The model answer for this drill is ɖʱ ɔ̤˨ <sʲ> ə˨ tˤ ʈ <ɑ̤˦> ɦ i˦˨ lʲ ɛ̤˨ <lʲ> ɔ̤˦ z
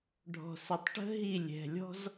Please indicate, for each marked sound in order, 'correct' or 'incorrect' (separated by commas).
incorrect, incorrect, correct